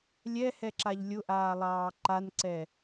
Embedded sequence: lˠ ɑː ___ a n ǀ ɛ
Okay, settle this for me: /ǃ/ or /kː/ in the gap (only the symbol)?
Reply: ǃ